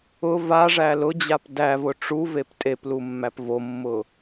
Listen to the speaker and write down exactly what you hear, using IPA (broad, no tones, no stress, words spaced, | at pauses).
ʊ vaʐæ lʊd͡ʑap dævʊ ʈ͡ʂuvep tʼeplumːæp vomːʊ